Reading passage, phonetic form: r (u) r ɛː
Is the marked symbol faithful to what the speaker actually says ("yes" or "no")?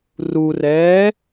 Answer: yes